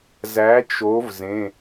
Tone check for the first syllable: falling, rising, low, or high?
rising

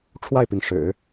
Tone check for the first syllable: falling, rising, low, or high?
falling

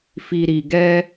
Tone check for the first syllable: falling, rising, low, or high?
low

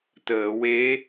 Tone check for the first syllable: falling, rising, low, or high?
low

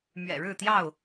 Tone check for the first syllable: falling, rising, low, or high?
low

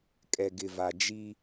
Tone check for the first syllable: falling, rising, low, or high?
low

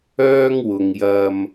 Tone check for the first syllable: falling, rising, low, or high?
high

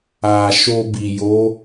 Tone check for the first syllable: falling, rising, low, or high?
low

